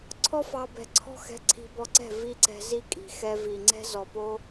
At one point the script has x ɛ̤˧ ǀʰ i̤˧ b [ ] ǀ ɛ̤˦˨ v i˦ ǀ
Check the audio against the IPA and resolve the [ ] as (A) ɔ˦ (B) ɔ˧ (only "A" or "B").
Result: B